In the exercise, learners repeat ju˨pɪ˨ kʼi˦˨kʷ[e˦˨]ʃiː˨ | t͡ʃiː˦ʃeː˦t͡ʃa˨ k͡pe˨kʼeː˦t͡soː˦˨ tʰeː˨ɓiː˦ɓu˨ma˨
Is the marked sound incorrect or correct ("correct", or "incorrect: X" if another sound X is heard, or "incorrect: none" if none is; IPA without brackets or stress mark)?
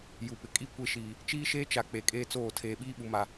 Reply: correct